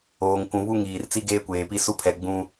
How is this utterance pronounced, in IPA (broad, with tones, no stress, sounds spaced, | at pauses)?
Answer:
oː˨ ŋ kʷ ũ˨ β u˦ ŋ iː˨ r t͡s i˦ ɡ eː˦ kʷ eː˨ p i˦ s u˦ pʰ ɛ˨ ɡ͡b ũ˦